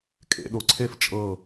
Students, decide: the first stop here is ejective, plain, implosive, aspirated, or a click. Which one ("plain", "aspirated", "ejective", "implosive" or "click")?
ejective